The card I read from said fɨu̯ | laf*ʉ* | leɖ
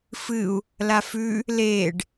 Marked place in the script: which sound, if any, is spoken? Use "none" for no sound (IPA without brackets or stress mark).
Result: ʉ